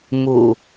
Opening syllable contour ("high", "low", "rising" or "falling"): low